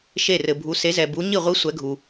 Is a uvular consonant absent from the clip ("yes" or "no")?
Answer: no